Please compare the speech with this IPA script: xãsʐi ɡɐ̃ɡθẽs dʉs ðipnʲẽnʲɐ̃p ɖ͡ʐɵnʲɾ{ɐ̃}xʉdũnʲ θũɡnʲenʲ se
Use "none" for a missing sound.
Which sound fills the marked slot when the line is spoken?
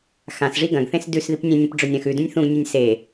ɐ̃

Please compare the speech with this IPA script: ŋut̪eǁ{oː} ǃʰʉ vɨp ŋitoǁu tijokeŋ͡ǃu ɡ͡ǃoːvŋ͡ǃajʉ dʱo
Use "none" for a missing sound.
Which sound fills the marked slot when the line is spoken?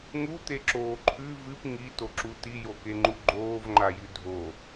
oː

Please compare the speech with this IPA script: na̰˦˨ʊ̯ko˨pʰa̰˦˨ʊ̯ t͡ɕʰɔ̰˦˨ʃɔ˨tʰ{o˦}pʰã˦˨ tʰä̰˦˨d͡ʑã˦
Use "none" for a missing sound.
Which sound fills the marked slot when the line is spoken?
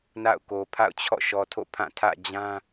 o̰˦˨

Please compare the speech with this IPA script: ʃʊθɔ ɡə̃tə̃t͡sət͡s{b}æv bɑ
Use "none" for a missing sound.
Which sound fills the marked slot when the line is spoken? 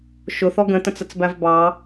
b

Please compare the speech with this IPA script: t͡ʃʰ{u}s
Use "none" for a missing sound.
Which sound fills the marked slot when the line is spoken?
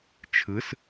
ɯ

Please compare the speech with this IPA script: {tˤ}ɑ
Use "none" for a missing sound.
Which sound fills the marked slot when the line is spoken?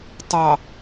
tˤ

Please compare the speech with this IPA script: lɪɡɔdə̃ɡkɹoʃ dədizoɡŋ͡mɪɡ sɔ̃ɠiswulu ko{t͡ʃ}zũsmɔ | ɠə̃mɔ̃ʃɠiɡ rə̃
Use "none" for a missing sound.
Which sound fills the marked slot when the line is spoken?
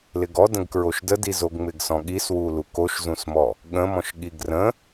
ʃ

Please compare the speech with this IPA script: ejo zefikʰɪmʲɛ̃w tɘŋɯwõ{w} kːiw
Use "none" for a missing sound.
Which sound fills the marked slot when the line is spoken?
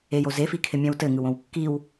w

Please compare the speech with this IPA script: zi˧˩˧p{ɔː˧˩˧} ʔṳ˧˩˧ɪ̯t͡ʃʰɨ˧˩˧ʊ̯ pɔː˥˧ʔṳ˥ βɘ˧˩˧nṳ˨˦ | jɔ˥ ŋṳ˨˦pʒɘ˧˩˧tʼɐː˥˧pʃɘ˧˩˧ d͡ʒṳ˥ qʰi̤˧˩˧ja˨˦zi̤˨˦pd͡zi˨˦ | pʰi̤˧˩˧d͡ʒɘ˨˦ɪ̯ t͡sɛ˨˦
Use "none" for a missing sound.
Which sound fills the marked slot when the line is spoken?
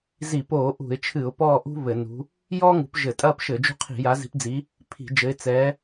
oː˧˩˧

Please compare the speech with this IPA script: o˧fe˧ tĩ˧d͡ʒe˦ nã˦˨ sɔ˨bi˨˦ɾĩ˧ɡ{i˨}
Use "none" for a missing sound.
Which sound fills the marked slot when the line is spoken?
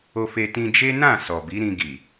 i˨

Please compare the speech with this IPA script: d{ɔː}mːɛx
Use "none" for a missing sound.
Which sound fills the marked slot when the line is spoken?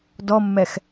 ɔ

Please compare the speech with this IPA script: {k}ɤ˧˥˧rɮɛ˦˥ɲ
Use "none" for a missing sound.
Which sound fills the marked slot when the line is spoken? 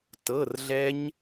t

